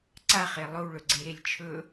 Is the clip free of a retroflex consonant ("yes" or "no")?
no